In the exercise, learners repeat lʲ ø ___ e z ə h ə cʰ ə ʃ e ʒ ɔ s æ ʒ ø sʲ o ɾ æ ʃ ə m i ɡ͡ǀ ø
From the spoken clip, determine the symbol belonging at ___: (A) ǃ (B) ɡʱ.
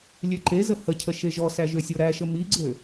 A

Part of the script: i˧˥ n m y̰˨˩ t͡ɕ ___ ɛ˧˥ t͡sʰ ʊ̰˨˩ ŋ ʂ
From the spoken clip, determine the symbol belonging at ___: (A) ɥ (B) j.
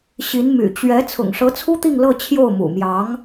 A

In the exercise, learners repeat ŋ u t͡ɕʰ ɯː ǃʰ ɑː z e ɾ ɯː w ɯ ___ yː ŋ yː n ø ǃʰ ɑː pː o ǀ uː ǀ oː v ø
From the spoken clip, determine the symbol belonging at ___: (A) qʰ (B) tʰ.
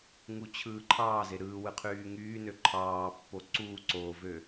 A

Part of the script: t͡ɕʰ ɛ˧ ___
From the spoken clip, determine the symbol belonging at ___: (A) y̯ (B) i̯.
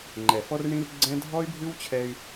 A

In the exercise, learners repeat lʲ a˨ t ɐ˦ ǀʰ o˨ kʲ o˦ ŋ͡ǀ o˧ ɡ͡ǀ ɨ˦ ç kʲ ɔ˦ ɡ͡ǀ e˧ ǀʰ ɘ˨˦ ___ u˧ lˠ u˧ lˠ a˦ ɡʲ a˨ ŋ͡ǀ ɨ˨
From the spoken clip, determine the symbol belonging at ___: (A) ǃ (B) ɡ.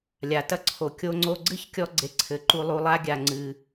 A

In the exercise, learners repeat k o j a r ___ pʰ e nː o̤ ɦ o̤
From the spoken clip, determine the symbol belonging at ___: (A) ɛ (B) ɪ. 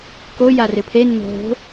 B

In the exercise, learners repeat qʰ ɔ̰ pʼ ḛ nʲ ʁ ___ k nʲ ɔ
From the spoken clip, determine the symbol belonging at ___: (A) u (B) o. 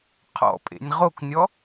B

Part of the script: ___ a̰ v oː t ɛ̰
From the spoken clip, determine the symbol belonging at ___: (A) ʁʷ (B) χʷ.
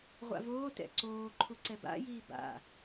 A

